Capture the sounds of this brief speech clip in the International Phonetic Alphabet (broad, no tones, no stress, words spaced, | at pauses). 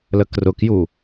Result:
ləkrʊkju